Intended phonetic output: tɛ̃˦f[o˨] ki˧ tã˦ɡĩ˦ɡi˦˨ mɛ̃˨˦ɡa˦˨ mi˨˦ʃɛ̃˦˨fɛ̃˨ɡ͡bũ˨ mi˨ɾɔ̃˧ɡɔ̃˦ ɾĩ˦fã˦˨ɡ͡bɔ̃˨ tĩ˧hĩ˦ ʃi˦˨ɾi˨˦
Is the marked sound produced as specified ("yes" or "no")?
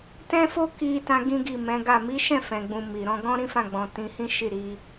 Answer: no